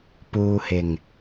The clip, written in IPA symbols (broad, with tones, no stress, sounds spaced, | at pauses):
p uː˧ h ɪ˨˩ ŋ